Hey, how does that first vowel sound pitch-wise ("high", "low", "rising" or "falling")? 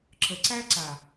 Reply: low